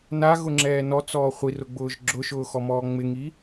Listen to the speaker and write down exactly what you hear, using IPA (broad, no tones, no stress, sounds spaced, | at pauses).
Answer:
n a ɣ ʊ ŋ͡ǁ ɛː n ɔ t͡s ɔː χʷ i r ʊ ɡ͡b ʊː ʒ ɡ͡ǁ ʊ ʃ ʊː x ɔ m ɔː ŋ͡m ɪ ŋ i